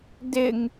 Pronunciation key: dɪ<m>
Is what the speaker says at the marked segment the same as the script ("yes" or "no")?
no